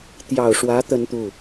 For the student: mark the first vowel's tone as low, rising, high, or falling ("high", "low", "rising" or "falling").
low